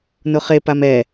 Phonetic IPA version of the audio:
n ʊ χ e p a m ɛ

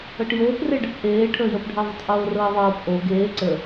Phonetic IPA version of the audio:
ɤ ʈ j oː p r e ɖ e p ʔ eː ʈʰ əː j əː p ɖʱ əː ðˤ ə tˤ ʔ oː r ɤː ðˤ ɤː p ʔ o ɡ eː ǀ ə

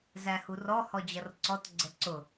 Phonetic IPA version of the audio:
z æ h u r ɔ h ɔ d͡ʑ ʌ r ǀ ɔ t ɡ͡ǀ ə ǀ ʊ

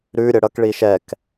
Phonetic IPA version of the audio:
ɾ ʉ ɾʲ ə ɽ ʌ k ɭ i ʃ ɛ k

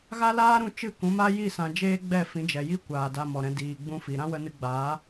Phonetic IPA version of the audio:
ɣ a˦ l aː˦ ɾ ũ˧ t͡ʃ ɨ˦˨ k ũ˨˦ m a˦ j i˦˨ s ã˧ d͡ʒ eː˦ ɡ͡b ɛ˦˨ f ĩ˨˦ d͡ʒ ɛ˨ j i˦ kʷ aː˨ d a˧ m ɔ˨ ɾ ɛ̃˧ d iː˨ ɡ͡b ũ˧ f i˨ ɾ ã˦ w ə˧ n ɨ˧ ɡ͡b aː˨˦

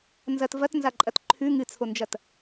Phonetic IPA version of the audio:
n z ɐ t v ɐ t n z a ǃʼ ɐ t ǃʰ ʉ ŋ ɨ t͡sʰ o n d͡ʒ ɐ t

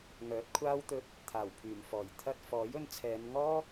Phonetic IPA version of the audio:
ŋ œː˨˥ t̚ kʷʰ aː˥ w t̪ ɵ˧ t̚ | t̪ʰ aː˨˩ w pʰ yː˨˩ m f ɔː˨˩ j t̪ʰ ɐ˧ t̚ f ɔː˨˥ j ɵ˧ n t͡sʰ ɛː˨˧ n ŋ ɔː˥

